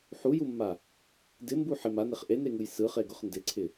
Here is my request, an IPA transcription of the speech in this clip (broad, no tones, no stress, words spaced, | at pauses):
ħujumːa | dɪmbu ħɪm aneχ ʔeneŋɯj sɯχeɡʊχ ndɪǀʰɪ